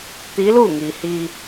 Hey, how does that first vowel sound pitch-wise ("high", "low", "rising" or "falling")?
rising